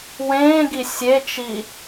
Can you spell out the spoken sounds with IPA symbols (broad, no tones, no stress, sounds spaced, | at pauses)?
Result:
w ẽː ɡ i sʲ e t͡ʃ i